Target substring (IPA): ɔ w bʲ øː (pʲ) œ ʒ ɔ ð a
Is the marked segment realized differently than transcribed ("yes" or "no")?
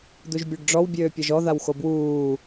no